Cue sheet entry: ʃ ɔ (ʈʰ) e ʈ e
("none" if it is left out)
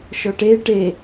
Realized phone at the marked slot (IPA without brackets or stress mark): ʈ